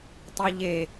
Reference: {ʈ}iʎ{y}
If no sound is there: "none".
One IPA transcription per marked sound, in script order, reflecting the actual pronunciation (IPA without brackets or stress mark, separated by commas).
tˤ, e